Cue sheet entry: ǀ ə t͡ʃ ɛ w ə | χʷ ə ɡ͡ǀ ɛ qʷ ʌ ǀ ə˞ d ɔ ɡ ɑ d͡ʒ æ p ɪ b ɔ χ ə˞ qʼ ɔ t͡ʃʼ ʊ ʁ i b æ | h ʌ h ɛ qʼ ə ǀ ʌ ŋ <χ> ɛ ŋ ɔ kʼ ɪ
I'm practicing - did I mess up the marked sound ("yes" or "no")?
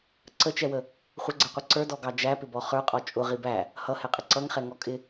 no